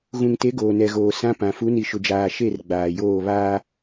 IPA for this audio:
ɣ ũ˨ ŋ t e˨˦ ɡ oː˨ n ɛ˨ ɣ oː˨ s ã˦ p ã˨ f u˨˦ n i˨ ʃ ʊ˨ d͡ʒ aː˨ ʃ e˦˨ r ɡ͡b aː˨ j oː˦˨ β aː˦

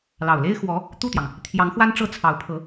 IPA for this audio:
l ɑ˨˩ ʊ̯ l e˥ ɪ̯ x w ɔ˧˥ | t̪ u˥˩ t̪ j ɑ˩ ŋ | t̪ʰ j ɑ˧˥ ŋ x w a˥ n ʈ͡ʂ ɤ˥˩ t͡sʰ ɑ˧˥ ʊ̯ pʰ ɤ˧˥

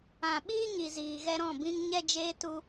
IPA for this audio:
ã˨ ɓ iː˦ ɲ i˨ z iː˨ ɣ ɛ˧ ɾ ɔ̃˦˨ b ĩ˦ ŋ ɲ ɛ˦ d͡ʒ eː˦ t u˦

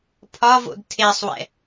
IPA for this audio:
pʰ ɒ v o̰ d tʰ e sˤ w ɛ̰

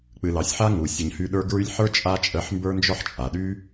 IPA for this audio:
k͡p ɨ˨ l ɑ˨ sʲ ħ a˥ ŋ u˩ sʲ ə˨ ɲ h y˦ ɗ ə˞˥ ɡ ɹ y˦ lʲ ħ ə˞˥ t͡ʃʼ a˥ t͡ʃʼ ə˦ ħ m b ə˞˥ n d͡ʒ ɔ˥ ħ t͡ʃʼ a˩ ɗ y˥

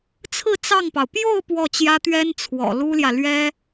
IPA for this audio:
t͡sʰ ɹ̩˥˧ t͡s ɑ˥˩ ŋ p ɑ˩ ʊ̯ p j o˥˧ ʊ̯ p w ɔ˥˩ t͡ɕ j ä˥ t̪ ɥ ɛ˥ n t͡sʰ w ɔ̰˨˩ l u˥ l j ä˨ l ɥ ɛ˥

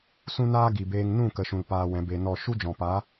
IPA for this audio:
s ũ˦ n aː˦ ɡ i˨ b eː˧ ŋ n ũ˦˨ k ə˨ ʃ ũ˨ l p aː˧ w ɛ̃˨˦ b e˧ n ɔ˦˨ ʃ u˦ d͡ʒ ɔ̃˨ p a˨˦

